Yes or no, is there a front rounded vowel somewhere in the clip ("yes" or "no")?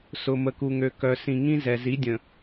yes